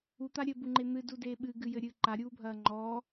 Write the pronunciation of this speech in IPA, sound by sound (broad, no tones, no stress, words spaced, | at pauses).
ut̪a ɾʲɘbuŋ͡ǃe n̪ɨdudeː ɓɨɡɨjɘɾʲɨː ǃaɾʲuːbʱɐː ŋ͡ǃɔː